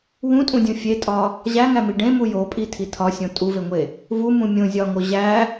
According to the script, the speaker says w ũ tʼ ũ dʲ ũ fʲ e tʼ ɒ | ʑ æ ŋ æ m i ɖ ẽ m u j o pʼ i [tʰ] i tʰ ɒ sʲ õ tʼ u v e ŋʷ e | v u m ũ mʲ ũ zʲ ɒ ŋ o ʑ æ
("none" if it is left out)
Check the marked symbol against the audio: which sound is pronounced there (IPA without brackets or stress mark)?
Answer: tʰ